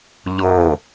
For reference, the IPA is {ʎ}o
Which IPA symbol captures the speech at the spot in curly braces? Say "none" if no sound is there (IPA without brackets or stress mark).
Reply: ʎ